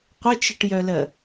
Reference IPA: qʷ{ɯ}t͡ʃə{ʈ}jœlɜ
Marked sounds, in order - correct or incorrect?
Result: incorrect, correct

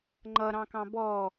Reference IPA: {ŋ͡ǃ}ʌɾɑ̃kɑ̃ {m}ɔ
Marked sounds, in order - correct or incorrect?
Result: correct, incorrect

